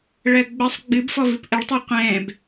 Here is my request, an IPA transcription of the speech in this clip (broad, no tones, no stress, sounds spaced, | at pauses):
ɭ ɜ ɡ͡b ə sˤ ɡ͡b ɨ b f ɔ v ɨ p ʔ ə ɭ tˤ ɛ qʷ ɛ̃ː b